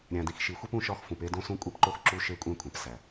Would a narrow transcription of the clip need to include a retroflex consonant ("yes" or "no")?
no